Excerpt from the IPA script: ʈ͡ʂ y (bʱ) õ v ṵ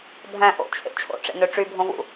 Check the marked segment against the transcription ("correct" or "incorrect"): correct